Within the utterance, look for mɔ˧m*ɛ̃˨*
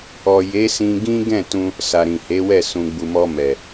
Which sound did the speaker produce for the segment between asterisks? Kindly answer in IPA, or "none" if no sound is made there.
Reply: ɛ˨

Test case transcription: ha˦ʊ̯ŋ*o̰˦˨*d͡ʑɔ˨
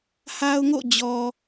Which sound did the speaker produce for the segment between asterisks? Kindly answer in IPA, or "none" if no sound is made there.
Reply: o̰˦˨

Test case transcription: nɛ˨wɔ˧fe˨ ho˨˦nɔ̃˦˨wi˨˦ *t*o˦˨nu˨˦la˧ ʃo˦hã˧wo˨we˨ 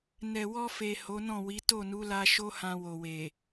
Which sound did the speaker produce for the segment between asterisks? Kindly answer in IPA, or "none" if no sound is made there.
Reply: t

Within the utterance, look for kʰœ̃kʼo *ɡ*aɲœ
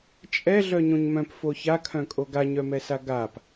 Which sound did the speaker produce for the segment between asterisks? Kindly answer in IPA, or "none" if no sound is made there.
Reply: ɡ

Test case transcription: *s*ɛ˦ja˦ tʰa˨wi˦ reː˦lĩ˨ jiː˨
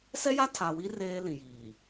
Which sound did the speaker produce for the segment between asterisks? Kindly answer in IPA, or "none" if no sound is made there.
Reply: s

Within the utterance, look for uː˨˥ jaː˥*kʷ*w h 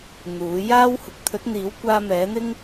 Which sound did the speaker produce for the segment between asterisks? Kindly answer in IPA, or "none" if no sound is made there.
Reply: none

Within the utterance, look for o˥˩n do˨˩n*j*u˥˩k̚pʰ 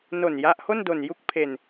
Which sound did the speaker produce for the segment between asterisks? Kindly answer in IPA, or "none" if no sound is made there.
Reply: j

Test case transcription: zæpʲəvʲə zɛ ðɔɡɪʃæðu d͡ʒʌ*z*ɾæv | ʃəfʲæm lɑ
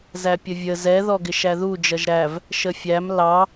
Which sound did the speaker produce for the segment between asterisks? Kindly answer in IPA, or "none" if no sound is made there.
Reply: ʒ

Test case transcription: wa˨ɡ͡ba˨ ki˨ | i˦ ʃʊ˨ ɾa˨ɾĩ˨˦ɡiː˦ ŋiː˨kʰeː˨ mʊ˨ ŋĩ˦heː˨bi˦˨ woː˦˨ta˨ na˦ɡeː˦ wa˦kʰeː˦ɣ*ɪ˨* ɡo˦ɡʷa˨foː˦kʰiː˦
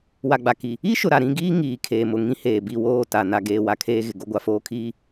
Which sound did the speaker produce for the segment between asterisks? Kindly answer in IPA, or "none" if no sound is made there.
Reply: ɪ˨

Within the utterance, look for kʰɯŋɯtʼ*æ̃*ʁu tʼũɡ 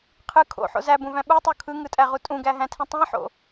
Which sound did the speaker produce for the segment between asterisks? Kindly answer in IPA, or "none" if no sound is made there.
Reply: æ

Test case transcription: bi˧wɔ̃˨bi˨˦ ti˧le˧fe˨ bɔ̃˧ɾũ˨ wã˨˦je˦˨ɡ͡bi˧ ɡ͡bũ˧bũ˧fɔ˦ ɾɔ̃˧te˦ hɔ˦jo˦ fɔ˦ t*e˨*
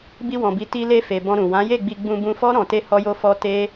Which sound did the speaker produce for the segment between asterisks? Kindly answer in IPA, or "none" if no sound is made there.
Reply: e˦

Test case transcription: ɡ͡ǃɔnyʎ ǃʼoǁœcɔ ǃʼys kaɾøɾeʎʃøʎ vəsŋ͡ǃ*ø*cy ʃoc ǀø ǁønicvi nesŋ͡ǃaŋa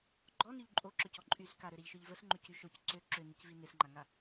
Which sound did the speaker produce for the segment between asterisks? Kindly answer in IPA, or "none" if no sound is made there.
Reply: ø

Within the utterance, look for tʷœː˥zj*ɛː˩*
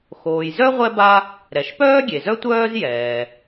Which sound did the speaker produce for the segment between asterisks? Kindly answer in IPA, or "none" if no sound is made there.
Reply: ɛː˩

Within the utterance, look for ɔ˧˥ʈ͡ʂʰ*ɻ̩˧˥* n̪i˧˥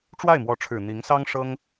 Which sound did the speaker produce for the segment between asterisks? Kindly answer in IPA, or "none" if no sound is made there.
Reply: ɻ̩˨˩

